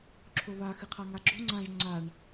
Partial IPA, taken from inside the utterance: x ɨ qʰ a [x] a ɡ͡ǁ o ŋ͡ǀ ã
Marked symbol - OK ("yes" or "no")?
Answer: no